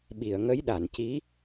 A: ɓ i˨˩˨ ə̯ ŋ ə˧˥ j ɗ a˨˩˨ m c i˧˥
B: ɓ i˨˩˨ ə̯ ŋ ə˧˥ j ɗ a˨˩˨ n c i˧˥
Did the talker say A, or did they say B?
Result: B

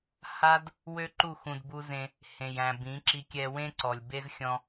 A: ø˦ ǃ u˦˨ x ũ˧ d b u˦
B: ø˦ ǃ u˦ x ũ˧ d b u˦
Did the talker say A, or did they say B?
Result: A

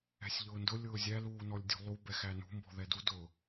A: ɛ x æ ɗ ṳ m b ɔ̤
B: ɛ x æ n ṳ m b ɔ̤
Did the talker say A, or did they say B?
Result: B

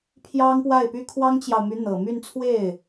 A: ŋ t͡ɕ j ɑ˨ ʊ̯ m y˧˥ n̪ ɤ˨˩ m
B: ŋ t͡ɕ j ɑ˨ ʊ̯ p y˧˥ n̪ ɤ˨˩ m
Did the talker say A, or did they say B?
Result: A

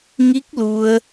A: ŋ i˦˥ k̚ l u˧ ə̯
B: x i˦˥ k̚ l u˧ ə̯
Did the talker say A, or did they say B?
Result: A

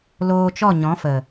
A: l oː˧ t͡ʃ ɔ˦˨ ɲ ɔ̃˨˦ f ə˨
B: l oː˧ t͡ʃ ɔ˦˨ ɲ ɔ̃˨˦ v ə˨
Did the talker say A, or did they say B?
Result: A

